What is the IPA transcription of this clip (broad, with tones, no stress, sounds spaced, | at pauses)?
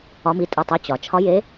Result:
ɒ˨˦ m i˩˧˩ tʼ ɨ˩˧˩ tˤ ɨ˩˧˩ t͡ɕ ɒ˩ t͡ʃʰ ɒ˨˦ j e˨˦